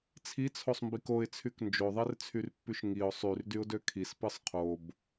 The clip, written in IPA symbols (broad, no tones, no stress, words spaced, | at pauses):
t͡sʰit͡sʰosˤmbik oɪ̯t͡sʰyk nd͡ʒoðˤert͡sʰyrpːyʃ ŋiʊ̯ sˤyrdyʊ̯dø kʰispɯsˤ qʰob